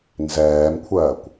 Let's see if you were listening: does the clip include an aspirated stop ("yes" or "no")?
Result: yes